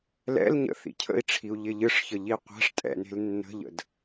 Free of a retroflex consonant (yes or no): no